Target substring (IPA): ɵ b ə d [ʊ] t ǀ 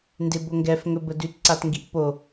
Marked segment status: incorrect: ʉ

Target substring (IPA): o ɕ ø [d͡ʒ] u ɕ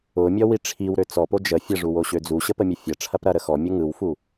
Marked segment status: incorrect: d͡z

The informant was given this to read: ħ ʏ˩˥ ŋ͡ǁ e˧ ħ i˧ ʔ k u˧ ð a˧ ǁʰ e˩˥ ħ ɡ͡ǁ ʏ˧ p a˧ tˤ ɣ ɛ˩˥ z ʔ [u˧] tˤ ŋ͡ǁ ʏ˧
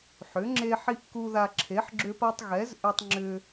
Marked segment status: incorrect: ʏ˧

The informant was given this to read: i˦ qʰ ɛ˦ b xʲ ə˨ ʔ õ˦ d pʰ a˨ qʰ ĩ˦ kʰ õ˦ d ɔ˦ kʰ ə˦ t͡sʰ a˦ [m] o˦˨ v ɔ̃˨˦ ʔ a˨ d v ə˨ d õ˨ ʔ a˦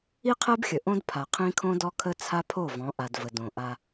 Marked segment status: incorrect: pʰ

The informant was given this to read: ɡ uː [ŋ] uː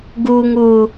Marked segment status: correct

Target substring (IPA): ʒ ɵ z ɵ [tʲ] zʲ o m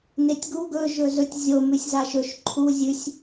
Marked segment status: correct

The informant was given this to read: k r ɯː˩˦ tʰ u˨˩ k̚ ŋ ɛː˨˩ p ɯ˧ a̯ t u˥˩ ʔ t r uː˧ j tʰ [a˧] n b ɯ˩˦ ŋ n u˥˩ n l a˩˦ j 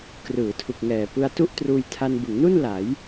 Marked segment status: correct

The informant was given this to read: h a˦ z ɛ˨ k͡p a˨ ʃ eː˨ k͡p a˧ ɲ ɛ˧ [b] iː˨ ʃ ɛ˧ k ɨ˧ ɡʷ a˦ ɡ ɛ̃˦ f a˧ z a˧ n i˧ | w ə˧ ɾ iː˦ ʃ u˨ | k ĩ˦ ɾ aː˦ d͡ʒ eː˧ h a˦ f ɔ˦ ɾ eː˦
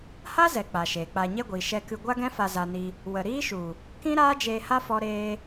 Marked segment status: incorrect: ɡʷ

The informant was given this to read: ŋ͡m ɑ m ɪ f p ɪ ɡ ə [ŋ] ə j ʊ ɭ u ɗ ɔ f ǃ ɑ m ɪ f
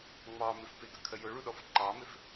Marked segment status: incorrect: kʰ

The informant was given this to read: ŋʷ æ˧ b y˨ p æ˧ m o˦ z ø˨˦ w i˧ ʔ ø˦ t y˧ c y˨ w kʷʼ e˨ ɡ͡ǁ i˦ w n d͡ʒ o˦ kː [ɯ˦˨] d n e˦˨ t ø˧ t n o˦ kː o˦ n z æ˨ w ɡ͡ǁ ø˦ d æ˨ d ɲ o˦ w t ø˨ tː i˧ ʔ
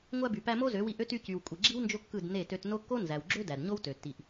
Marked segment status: correct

